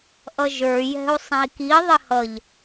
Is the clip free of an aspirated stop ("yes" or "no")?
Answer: yes